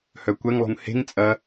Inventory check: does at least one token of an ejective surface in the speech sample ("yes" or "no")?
yes